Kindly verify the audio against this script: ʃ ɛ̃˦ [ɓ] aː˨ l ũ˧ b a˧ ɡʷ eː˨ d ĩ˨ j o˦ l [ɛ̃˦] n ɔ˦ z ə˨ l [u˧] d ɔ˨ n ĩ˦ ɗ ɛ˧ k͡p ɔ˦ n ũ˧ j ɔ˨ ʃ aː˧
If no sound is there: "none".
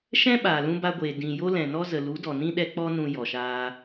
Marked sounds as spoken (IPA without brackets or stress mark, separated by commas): ɓ, ɛ̃˨, u˨˦